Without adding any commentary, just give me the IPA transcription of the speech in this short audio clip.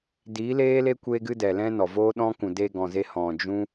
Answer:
di˨˦leː˦le˦ kʷeː˦ɡɨ˦dɛ˨lɛ̃˦ nɔ˨voː˦ɗɔ̃˦ kũ˨de˧ɡɔ̃˨ze˧ hɔ̃˨ d͡ʒũ˦

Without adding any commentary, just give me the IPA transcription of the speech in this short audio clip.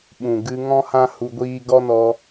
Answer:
ɓũ˨ ɡɨ˧ ŋɔ̃˦hã˦ hu˧ɡʷiː˦ ɡɔ˦nɔ˧

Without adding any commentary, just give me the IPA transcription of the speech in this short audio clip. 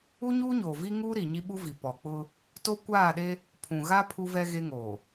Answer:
u˦ɲuː˦ɲoː˨ vi˦ŋuː˦ɾi˨ ɲi˦ɓu˦vi˨ pɔ˨k͡pʊ˦ | to˦ kʷaː˦˨ɗe˦ | pʰũ˨ɣa˦ pʰu˦vɛ˦ ɣe˦ŋoː˨

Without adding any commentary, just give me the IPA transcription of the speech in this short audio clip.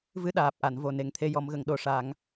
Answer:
vɨ˧ɗaː˨˩p̚ʔa˨˩˨nvo˨˩ ne˨˩ŋt̪ʰe˧jɔ˨˩˦mɣə˨˩˨ŋ ɗo˨˩ʂa˨˩˦ŋ

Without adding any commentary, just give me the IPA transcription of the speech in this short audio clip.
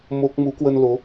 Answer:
mo˦˥k̚ mu˨˦kwə˧nlo˨˦

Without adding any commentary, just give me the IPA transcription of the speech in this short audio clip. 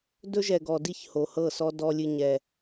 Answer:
dɵ˦ʒɛ˨ɡɔ˨di˦˨ç ho˨hɤ˦˨sɔ˦ dɔ˦lʲɨ˦ɲɛ˦

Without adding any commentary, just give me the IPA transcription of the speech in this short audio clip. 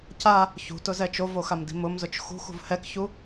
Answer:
ca | çṳtʊzɛ t͡ʃovoxamdi̤ mʊmzʊt͡ʃ xṳxṳv hɛkçu

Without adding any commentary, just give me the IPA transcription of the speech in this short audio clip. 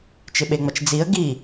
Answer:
t͡ʃɪɓeŋ͡mɐt͡ʃd͡ziə̯ ɡi

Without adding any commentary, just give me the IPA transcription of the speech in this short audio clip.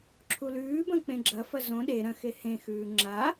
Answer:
ǁʰulʉːbɐ̃ k͡pẽɡ͡ǁɐfɐ zõ ɗe ɾɐ̃xe hẽxʉː ŋ͡ǁa

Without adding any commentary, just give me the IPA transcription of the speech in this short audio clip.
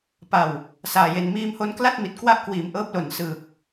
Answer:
pa˨˩w | saː˨˩je˨˩n miː˧mho˦˥nkla˥˩t̚ mi˨˩t̚kwa˦˥ʔkwiː˨˩m ʔɤː˦˥p̚lo˨˩n sɯː˨˩k̚

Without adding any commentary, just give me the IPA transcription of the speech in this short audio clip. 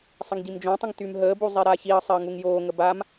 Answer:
sˤɪŋɟimd͡ʒõtˤə̃ŋ tymɦəːbu zˤiɾaçiə̯sˤɪə̯ ŋuŋjoːŋə bam

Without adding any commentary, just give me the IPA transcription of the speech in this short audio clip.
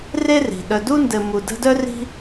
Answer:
re˥ri̤˩ ɗœ˨du˥ndɘ˨ mu˨də̤˦dœ˥ ri̤˦

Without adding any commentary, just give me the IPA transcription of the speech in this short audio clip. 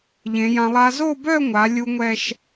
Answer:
ʎẽ˩˧jã˧lˠa˦˥ zo˥˧bœ˥˧ŋʷa˩˧ lʲu˦˥ŋʷɛ˥˧ʃ

